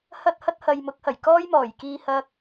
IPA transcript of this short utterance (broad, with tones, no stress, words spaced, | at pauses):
hɐ˥t̚hɐ˥t̚ hɐ˨jmʊ˨˥k̚hɐ˨˩j kɔː˥jmɔː˨˩jkiː˧ hɐ˥k̚